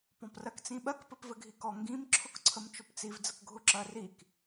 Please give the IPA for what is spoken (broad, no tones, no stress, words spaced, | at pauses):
pɔ̃prɜkt͡sĩɓɜk pɘpvɘɡʱikɔ ŋɡĩm ǁʰʊkǀʰəmt͡ʃʊpt͡siv d͡zəkɡʱʊǁɜrik